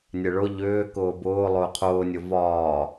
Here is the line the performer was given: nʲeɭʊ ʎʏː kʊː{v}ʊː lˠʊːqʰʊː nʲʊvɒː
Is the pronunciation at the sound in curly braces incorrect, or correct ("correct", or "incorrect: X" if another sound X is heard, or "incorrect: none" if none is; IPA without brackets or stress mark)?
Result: incorrect: b